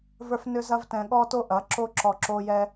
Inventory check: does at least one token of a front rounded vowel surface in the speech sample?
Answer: yes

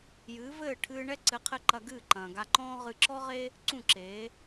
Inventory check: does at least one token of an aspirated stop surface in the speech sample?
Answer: yes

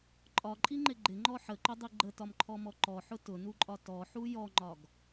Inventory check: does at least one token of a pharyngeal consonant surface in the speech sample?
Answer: yes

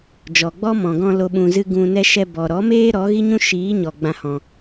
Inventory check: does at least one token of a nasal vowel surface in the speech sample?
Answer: yes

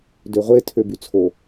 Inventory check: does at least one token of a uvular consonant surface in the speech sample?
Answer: yes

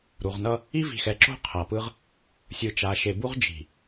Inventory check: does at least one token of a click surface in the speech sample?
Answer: yes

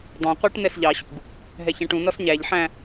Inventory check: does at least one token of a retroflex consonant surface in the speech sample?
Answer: yes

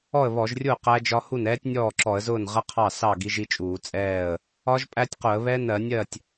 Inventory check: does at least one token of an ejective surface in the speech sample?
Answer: yes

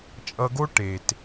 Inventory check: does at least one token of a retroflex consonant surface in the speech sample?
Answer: yes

